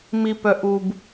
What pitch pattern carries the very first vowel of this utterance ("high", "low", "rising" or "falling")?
low